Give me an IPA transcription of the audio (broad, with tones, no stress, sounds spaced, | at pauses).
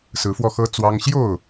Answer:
s ɹ̩˨˦ f w ɔ˧ x ɤ˦ t͡s w ɑ˦ ŋ ɕ j o˥˨ ʊ̯